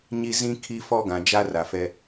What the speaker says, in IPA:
ɲ i˦ z ĩ˦ kʰ i˦ f ɔ˦ ɡ ã˨ d͡ʒ a˦ r a˨ f ɛ˦

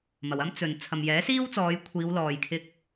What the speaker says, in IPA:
m ɐ˨ w ɐ˥ m t͡s ɵ˨ n t͡sʰ ɐ˨ m j ɛː˨˥ s iː˥ w t͡s ɔː˨˧ j kʷʰ iː˨˧ w l ɔː˨ j kʰ ɪ˧ k̚

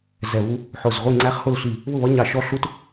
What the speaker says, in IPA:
z ɛ˧˩ β u˦˥ | ħ ʊ˧˩ z ʁʷ i˥˨ ŋ͡ǀ æ˦˥ χ h ʊ˥˨ l ɬ i˧˩ | β ʊ˥˨ β ʌ˦˥ ɲ ɑ˦˥ ʃ ɔ˦˥ ɬ u˦˥ t

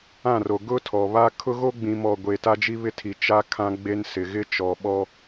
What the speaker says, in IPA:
ã˦˨ r o˨ ɡ ʊ˦ tʰ ɔ˨ β a˦ kʰ ʊ˦ ɣ o˦ ɡ͡b ĩ˨ m ɔ˨ ɡʷ e˨ t a˦ d͡ʒ i˦ β ɪ˦ tʰ i˨ t͡ʃ a˦ kʰ ã˦ ɡ͡b e˦ n s ɪ˨ ɣ ɪ˦ t͡ʃ ɔ˨ ɓ ɔ˦

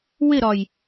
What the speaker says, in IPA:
w ɪ ɾ ɒ j

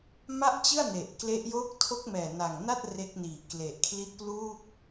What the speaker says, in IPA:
m a˥˩ ʔ t͡ɕ ɯ˥˩ a̯ n e˨˩ ʔ k l e˦˥ ʔ j oː˦˥ k̚ tʰ o˦˥ k̚ m ɛː˨˩ n a˨˩ ŋ n a˥˩ t̚ r e˦˥ k̚ n iː˨˩ k l e˨˩ ʔ kʰ l i˦˥ t̚ p l uː˥˩ k̚

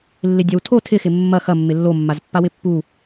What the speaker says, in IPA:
lː ɪ dʲ ɐ w tʰ o tʰ ɪ x ɪ mː ɐ x ɐ mː ɪ lː o mː a z pː a w ɪ pː u

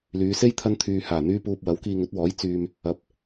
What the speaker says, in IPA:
l yː˨˧ s e˥ j t̪ʰ ɐ˥ n t̪ʰ yː˧ h aː˨˩ n̪ yː˥ p uː˧ p̚ w ɐ˨˥ w k iː˧ ŋ ɵ˨˥ t̚ w ɔː˨˥ j t͡s yː˧ m | ɐ˨˥ p̚

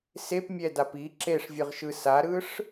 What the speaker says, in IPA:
s e p mʲ ɛ d a p i ǁ e ʂ vʲ ɯ ʁ ʃ ɯ s a ɾ ɯ ʂ

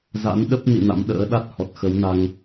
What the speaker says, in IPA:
z a̰˧˥ n ɗ ə˦˥ p̚ n ḭ˧˨ n a̰˧˥ m ɗ ə̰ː˧˥ ɗ a˦˥ t̚ h ɔ˨˩ t̚ x ə˨˦ w n a˧ ŋ

